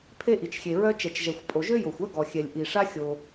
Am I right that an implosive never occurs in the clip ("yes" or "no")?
yes